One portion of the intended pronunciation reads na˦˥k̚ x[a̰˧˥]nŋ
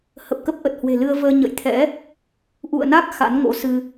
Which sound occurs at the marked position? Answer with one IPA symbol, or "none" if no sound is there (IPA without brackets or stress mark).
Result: a̰˧˥